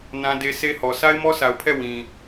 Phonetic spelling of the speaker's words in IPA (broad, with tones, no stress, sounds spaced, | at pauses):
n ã˦ d e˦ s e˦ h ɔ˨ s a˦ ɪ̯ m ɔ˦ sʰ a˨ ʊ̯ pʰ ɛ˦˨ w ĩ˨